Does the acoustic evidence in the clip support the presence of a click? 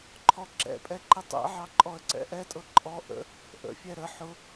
yes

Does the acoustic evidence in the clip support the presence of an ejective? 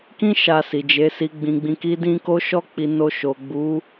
no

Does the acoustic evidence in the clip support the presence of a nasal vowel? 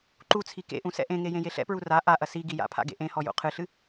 yes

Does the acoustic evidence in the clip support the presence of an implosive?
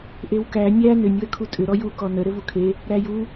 no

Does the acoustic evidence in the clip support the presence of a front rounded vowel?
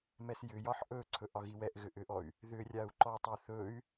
yes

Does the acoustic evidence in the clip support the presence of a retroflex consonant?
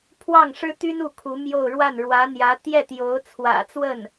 yes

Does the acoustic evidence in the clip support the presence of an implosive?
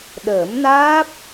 yes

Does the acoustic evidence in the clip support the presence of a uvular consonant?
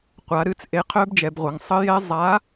yes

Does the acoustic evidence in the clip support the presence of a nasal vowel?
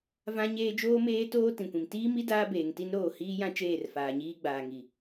yes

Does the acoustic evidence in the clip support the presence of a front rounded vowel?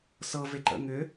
yes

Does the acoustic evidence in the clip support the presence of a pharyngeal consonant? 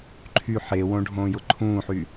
yes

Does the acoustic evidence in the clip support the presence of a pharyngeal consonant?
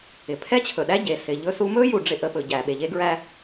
no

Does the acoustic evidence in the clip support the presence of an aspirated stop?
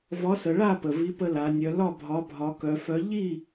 no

